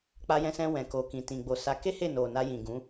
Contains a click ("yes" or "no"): no